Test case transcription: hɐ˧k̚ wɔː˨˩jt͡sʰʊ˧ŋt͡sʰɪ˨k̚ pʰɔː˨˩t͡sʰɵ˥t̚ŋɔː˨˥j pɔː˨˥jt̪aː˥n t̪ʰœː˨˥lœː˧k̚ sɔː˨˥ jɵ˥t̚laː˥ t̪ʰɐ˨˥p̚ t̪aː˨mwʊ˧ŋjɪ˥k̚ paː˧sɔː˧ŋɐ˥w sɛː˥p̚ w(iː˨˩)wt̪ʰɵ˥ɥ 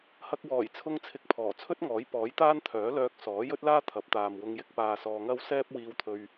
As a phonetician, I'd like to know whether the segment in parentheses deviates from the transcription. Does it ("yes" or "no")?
yes